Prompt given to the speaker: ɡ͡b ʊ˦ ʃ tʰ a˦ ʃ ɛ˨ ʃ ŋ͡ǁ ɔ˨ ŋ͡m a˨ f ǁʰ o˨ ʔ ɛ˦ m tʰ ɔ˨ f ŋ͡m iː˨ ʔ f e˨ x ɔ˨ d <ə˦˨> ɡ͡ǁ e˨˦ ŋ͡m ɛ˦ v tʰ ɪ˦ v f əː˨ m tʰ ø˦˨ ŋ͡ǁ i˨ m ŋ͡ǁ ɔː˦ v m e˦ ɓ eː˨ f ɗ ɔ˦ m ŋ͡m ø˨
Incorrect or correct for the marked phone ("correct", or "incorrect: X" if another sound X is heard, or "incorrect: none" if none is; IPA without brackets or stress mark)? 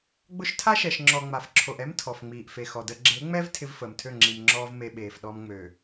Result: incorrect: ə˨